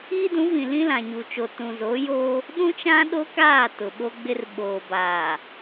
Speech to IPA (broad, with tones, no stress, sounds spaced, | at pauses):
iː˦ d ũ˨˦ v ĩ˨ l ĩ˦ l ã˨ ɲ u˨ t͡ʃ o˨ t ũ˨ z oː˨˦ j oː˦ | ɗ ũ˦ t͡ʃ ã˦ ɗ o˦ k aː˦˨ t ʊ˨ ɓ o˦ ɡ͡b ɪ˦ r ɓ oː˨ b aː˨